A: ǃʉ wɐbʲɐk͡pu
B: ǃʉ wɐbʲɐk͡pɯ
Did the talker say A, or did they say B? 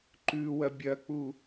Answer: A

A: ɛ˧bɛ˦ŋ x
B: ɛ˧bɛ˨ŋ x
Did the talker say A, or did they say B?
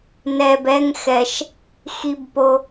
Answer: A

